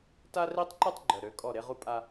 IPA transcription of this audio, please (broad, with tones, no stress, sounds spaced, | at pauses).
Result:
t a˦ r i˦ tˤ ǃ y˦ tˤ ɡ͡ǃ œ˨ ɾ ø˨˦ kʼ ɔ˦˨ ɾ e˦ ʁ u˦ pʼ a˦